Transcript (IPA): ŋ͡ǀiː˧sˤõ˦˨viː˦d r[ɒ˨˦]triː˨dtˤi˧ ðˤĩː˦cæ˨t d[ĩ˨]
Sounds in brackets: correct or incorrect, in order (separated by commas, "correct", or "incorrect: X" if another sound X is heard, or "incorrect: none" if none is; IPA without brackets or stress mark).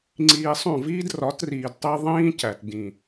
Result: correct, correct